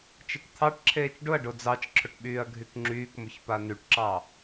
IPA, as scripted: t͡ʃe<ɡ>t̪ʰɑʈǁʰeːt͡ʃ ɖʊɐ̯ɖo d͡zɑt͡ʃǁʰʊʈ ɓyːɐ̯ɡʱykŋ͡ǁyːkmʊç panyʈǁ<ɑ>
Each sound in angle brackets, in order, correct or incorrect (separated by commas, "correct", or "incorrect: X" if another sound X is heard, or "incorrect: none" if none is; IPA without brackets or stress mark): incorrect: k, correct